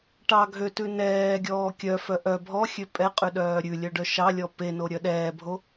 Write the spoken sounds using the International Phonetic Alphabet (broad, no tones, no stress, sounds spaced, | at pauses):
ʈ ɑ ɡʱ ø t ʉ n ɛː ɡʲ ɔː kʲ œ f œ ʔ œ bʱ ɔ xʲ ø pʼ ɛ qʼ ʉ ɗ œː ɾʲ ʉ lʲ œ ɖ œ ʃ ɑ lʲ ɔ p e n o ɾʲ œ ɗ ɛː bʱ o